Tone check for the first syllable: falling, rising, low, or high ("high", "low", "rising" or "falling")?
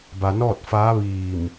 low